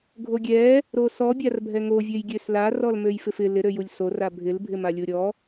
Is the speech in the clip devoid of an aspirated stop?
yes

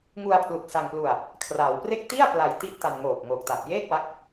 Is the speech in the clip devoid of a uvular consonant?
yes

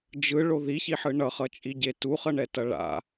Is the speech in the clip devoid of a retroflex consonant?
no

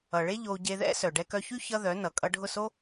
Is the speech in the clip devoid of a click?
yes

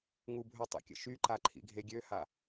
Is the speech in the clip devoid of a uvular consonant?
yes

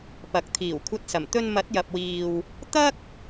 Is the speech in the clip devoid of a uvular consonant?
yes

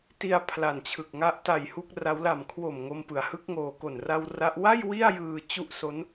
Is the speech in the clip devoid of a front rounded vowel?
yes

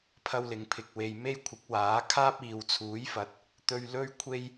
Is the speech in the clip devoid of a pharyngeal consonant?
yes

